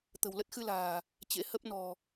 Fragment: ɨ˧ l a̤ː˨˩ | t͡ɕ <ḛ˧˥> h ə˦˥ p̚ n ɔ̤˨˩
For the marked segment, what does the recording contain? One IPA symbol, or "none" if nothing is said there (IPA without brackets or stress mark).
ḛ˧˥